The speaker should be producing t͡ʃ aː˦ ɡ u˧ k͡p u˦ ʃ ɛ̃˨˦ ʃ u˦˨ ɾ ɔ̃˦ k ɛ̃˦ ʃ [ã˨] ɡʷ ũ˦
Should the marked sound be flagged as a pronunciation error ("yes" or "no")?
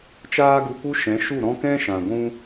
no